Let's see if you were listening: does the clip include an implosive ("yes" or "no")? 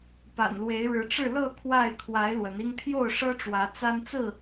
no